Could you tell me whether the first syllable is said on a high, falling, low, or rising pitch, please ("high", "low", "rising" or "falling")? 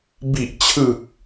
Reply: low